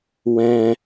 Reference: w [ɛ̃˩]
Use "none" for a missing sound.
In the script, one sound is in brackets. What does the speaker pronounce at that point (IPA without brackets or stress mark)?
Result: ɛ̃˩